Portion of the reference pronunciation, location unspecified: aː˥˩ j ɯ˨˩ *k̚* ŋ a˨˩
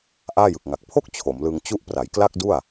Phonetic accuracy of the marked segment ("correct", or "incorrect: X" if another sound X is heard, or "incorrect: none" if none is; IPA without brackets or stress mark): correct